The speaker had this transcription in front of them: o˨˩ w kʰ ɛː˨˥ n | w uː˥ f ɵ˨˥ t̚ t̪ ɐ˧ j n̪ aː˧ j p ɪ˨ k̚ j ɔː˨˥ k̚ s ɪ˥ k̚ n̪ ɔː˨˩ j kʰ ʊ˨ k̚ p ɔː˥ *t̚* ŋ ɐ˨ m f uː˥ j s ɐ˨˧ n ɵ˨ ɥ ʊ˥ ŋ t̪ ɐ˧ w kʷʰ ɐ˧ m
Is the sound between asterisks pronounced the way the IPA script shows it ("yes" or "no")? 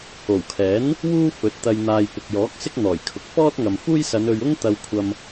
yes